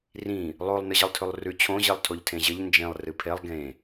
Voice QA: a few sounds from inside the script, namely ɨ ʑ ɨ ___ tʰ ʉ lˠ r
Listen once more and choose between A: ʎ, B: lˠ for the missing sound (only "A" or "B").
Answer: B